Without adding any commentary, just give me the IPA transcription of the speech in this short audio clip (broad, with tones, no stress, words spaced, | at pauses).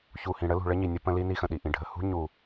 çu˨ hĩ˨ɽə˦lṳ˨ ɭə˦ɲi˨ nʲə˦ pə̃˦li˦ ni˦xə̃˨ɗi˨ʔĩ˨ ɖʱə˨ hṳ˦ ɲu˨